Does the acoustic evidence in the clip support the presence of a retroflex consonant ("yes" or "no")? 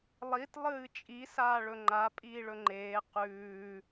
yes